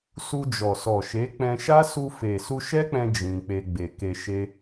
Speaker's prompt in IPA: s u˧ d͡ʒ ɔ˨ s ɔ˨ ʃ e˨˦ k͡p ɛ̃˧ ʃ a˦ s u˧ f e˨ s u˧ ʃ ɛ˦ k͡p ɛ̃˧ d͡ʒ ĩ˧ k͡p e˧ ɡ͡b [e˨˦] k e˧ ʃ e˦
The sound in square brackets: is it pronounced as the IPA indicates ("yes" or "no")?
no